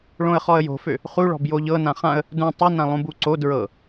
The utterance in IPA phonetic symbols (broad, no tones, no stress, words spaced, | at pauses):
ɭõə̯χɔə̯jo̤fø | χuɭɔ̤b joʎɤ nãχãə̯ | dũ tˤunã lˠũbuǀo dɹɤ